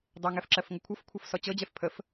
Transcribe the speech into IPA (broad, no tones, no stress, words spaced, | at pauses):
dˤeŋɛf ǁɜfŋəkʷʰɤfkʷʰʌf sɔt͡ɕɤd͡ʑɛf pʰəf